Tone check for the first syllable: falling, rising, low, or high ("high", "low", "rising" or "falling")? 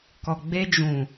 low